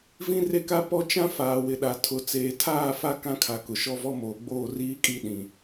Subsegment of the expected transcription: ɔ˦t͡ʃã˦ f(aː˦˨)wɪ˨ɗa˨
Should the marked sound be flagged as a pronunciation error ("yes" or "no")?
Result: yes